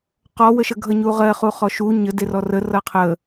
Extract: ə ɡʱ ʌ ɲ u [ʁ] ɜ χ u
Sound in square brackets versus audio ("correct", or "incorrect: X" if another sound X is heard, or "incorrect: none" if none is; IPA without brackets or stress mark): correct